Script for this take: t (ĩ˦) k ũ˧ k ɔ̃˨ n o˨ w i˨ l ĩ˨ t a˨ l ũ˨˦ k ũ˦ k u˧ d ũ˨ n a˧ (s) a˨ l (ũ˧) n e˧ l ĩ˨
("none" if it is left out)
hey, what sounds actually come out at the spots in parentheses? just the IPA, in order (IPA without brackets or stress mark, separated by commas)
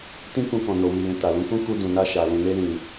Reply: ĩ˦, ʃ, ũ˨